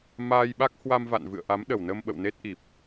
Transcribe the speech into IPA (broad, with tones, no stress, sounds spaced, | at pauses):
m aː˧ j ɓ a˦˥ k̚ h w a˧ m v a̰˧˨ n v ɨ̰˧˨ ə̯ ʔ a˨˦ m ɗ ə˨˩ w n ə˧ m ɓ ə̰˧˨ w n e˦˥ t̚ ʔ i˨˩ p̚